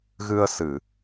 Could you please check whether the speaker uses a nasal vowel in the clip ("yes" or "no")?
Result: no